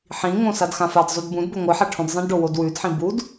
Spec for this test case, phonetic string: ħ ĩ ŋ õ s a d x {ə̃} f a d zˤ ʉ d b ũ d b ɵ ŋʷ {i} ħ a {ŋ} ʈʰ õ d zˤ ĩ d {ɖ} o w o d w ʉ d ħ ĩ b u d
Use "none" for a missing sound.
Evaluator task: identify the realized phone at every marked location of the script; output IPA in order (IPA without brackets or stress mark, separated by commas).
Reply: ã, ɨ, none, ɖ